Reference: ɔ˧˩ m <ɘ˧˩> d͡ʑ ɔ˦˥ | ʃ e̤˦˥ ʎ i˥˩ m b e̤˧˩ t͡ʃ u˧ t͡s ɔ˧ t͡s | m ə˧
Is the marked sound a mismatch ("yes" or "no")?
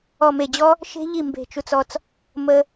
yes